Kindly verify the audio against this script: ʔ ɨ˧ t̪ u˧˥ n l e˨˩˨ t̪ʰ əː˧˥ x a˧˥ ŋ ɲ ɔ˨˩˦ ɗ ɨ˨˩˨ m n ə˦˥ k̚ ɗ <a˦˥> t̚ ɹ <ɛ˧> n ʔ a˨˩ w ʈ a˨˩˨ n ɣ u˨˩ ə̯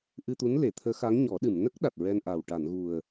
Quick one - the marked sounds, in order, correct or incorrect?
incorrect: a˨˩, correct

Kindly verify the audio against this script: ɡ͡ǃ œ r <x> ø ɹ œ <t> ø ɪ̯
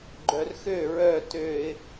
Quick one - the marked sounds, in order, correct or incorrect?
correct, correct

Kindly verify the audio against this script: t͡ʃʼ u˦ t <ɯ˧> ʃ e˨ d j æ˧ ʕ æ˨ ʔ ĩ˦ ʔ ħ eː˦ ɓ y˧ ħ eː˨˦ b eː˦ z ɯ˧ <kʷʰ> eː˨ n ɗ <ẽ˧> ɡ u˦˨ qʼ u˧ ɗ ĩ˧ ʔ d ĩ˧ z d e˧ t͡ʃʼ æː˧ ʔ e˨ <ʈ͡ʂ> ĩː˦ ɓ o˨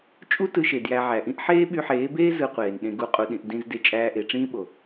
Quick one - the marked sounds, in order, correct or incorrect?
correct, incorrect: qʷ, correct, correct

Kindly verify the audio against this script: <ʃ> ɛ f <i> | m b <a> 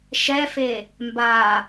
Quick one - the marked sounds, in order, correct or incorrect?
correct, incorrect: e, correct

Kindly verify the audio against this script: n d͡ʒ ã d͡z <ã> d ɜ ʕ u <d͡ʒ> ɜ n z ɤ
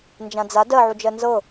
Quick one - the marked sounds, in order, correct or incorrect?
incorrect: a, correct

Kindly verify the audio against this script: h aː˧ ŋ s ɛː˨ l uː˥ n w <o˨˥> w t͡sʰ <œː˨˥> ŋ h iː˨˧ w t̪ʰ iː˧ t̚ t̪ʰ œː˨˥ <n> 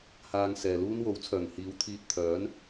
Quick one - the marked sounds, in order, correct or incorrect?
correct, incorrect: œː˨˩, correct

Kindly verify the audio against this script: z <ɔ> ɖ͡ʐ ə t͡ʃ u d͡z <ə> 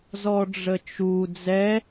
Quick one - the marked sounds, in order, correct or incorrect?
correct, incorrect: ɛ

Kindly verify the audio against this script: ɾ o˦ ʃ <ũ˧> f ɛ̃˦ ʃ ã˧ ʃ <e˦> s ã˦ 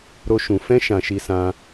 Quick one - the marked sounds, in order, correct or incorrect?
correct, incorrect: i˦

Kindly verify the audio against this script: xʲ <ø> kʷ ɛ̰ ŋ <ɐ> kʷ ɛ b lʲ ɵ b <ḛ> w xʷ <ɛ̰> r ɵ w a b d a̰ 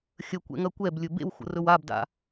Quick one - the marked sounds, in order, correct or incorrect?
incorrect: ə, correct, correct, incorrect: ə̰

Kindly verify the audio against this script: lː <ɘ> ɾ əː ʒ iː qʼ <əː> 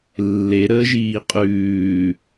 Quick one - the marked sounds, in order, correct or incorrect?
incorrect: e, incorrect: ʉː

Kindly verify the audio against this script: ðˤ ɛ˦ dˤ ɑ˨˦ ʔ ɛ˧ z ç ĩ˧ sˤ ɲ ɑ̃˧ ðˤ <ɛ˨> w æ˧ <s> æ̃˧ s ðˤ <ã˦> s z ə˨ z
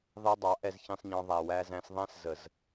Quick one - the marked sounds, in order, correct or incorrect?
incorrect: æ˨, incorrect: z, incorrect: æ̃˦

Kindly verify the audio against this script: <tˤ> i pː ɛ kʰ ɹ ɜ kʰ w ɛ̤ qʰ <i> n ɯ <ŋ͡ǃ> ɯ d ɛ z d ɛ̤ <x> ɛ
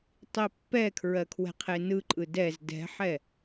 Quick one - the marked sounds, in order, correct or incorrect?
correct, incorrect: e, incorrect: ǃʼ, incorrect: ħ

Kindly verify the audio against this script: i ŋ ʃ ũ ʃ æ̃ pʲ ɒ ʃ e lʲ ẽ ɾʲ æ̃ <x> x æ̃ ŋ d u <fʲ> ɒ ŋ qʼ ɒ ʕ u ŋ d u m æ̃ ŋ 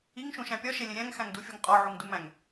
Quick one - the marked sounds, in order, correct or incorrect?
incorrect: ŋ, correct

